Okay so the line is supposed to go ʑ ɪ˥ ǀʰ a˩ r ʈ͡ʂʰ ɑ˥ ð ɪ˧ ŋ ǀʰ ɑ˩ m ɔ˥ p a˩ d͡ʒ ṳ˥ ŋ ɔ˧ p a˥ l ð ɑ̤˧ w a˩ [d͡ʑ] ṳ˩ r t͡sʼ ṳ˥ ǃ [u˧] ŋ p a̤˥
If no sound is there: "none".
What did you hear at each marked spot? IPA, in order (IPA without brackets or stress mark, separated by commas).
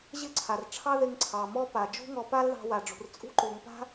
ɖ͡ʐ, u˩